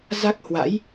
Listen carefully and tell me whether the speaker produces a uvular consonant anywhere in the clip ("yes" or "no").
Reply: no